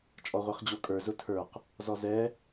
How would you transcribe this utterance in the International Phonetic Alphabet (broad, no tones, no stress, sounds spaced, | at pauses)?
t͡ʃʼ ɔ ʁʷ e χ d͡ʑ o kʼ ə˞ z ʊ tʰ ə˞ q | z ɔ z ɛ